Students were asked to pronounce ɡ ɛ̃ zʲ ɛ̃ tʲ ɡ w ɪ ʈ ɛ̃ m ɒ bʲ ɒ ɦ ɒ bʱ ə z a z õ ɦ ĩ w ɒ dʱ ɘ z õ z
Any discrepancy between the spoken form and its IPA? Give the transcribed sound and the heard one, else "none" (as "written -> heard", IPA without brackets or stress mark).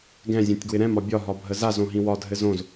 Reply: ʈ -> ɾ